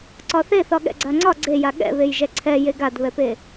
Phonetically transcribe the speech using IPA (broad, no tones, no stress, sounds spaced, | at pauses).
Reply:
ǀ ɒ θ e θ ɒ ɠ ɛ̰ ɡ͡ǀ a ŋ͡ǀ ɒ ɡ͡ǀ e j a ɠ ɛ̰ β e j ʒ ɛ ǀʰ ɛ j e ɡ a d β ɛ p e